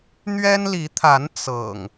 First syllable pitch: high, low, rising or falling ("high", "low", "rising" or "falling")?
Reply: high